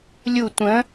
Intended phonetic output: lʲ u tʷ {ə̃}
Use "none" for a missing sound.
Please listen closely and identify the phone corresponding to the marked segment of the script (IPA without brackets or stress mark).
ə̃